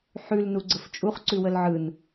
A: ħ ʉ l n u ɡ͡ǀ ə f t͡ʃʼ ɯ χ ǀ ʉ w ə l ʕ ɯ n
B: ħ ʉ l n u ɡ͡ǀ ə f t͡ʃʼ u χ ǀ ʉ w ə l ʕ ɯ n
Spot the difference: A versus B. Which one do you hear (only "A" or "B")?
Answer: B